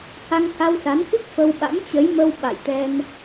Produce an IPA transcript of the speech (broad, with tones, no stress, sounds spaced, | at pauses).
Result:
h a˧ ŋ h a˧ w s a˨˦ n k ɨ˦˥ k̚ f ə˧ w ɓ a̰˧˥ m t͡ɕ ə˨˦ j m ə˧ w ɓ a̰˧˨ j t̪ ɛ˧ n